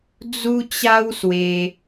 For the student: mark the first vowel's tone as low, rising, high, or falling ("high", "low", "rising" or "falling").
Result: high